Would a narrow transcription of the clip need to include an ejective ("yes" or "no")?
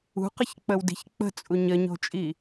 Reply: yes